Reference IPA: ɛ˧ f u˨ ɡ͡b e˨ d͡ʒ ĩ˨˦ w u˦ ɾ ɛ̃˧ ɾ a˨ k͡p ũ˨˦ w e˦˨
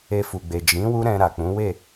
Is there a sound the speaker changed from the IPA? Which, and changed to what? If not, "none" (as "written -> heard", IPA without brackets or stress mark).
ɛ˧ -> e˧